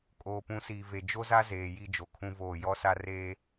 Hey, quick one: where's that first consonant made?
velum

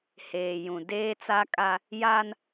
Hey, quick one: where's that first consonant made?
throat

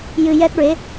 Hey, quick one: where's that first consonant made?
palate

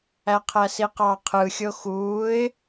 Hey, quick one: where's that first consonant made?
uvula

